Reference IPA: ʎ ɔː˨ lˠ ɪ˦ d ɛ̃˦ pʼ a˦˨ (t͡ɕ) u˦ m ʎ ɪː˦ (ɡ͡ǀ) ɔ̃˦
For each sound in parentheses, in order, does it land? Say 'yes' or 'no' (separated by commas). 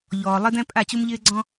yes, yes